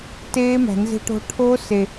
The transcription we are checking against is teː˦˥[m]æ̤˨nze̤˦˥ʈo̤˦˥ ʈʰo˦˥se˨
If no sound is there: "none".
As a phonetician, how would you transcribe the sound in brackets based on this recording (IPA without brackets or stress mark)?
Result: m